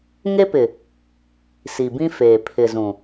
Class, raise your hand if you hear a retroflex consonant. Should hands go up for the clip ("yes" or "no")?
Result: no